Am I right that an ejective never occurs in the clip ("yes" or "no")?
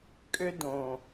no